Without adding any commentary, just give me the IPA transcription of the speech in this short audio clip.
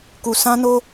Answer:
ku˨ sʰã˦no˦

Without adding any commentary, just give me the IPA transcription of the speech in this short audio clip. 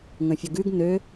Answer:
ŋə̃fʲəɡʉɡ nø

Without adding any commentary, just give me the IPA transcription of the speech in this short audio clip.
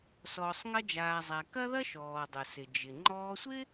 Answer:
sɔː˩sˤŋɐ˧d͡ʒaː˩ zˤa˩kɐ˥ ðɐ˥ʃɔː˩ dˤʊ˩sɪ˩d͡ʒɪ˩ ŋ͡ǃɔː˧sʷɪː˥

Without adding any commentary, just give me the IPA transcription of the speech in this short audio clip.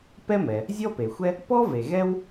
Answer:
pɛ˥mɛ˩ | zʲɔ˥pe˩xʷɛ˥ | pɔ˥ ve˩ɣɛ˥w

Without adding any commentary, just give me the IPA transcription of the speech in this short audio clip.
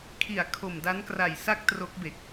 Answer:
kʰi˨˩a̯ kʰo˨˩mda˦˥nkra˨˩j sa˥˩k̚tro˦˥k̚be˨˩k̚

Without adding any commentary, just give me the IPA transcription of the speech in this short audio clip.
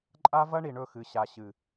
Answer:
ǃʼa˦vɐ˦ ɳi˨ɳɵ˦˨xɨ˨ ɕa˨ɕɨ˨

